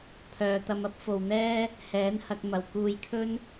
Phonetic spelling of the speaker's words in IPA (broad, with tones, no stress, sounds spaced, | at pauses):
pʰ œː˨ t̪ ɐ˧ m ɐ˥ p̚ f o˨ w n̪ ɛː˥ | h ɛː˨˥ n h ɐ˧ k̚ m ɐ˨˩ w k uː˧ j kʰ ɵ˥ n